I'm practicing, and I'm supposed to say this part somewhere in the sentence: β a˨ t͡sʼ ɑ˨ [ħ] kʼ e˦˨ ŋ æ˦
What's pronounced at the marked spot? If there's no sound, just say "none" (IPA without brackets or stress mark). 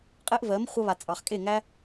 χ